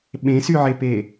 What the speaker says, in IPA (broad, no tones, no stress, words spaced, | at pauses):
ɓẽsyʕepe